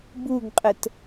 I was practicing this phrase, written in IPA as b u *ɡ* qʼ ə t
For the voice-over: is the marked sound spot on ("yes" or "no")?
yes